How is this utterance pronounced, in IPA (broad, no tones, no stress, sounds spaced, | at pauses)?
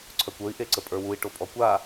ǀʰ œ kʷ ə˞ i̯ ʔ e ǀ ə pʼ ə˞ w u i̯ ʈ o pʼ ɔ kʷ a